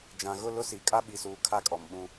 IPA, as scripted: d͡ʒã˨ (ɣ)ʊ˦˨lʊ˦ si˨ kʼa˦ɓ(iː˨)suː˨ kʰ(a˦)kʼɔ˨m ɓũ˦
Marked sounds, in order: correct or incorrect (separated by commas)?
correct, incorrect, correct